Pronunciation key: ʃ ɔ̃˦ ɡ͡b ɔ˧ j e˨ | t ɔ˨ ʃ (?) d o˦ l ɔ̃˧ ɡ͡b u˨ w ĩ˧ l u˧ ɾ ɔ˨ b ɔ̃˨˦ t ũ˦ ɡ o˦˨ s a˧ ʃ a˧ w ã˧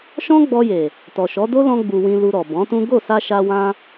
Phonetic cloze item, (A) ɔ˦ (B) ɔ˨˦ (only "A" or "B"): B